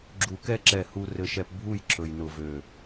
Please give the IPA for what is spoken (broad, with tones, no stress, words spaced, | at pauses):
ɡ͡ǁu˨ kɛ˦ ǁɛ˨ hu˦rɘ˦ʃɛ˦p bʱu˦˨jǁɵ˨jnʊ˨vø˨